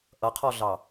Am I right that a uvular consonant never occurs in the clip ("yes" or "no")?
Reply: no